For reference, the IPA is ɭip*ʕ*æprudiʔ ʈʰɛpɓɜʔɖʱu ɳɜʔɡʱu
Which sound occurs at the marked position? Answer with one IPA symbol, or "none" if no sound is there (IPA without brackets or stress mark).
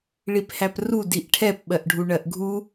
h